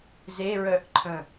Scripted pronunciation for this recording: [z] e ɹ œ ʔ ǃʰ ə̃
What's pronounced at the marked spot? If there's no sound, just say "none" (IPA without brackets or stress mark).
z